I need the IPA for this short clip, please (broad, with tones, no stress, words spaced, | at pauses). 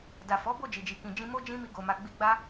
da˨fɔ˨˦ bo˦˨d͡ʒi˨d͡ʒi˨kĩ˨ d͡ʒĩ˧mo˦d͡ʒĩ˦ mi˦ɡo˧ma˧ ɡ͡bi˧ɡ͡ba˦